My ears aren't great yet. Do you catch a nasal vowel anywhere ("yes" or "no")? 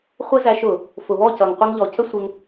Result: no